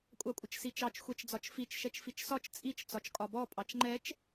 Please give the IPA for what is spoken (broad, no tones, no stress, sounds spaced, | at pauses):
kʷʼ ɑ kʷʼ ə t͡ʃ s i t͡ʃ ɑ t͡ʃ xʷ ɛ t͡ʃ d͡z ɒ t͡ʃ f i t͡ʃ ʃ ɛ t͡ʃ f i t͡ʃ s ɒ t͡ʃ t͡sʼ i t͡ʃ t͡s ɒ t͡ʃ kʼ ɒ b ɔ pʼ ɑ t͡ʃ ŋ͡ǃ ɛ t͡ʃ